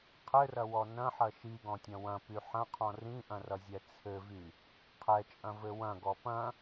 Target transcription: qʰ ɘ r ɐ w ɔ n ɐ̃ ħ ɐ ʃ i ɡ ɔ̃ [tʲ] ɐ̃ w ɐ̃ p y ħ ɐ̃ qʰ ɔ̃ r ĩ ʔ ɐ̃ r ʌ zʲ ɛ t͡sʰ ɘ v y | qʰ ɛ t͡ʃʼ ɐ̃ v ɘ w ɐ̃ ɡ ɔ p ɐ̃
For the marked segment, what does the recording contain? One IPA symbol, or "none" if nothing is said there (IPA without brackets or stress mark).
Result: tʲ